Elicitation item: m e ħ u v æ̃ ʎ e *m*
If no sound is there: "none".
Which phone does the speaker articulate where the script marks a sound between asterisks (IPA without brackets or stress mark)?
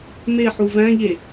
none